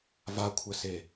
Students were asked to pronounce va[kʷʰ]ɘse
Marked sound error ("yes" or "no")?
no